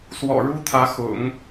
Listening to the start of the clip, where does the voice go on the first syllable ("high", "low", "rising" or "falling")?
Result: low